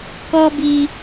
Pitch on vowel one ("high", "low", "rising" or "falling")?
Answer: high